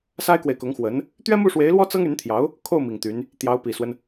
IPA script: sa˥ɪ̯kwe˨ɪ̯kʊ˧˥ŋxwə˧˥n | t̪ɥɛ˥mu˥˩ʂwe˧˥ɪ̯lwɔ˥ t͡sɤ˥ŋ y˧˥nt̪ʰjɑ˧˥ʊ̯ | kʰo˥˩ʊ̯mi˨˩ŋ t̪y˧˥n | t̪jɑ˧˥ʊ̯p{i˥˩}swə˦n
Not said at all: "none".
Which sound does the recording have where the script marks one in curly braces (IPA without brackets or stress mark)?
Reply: i˨˩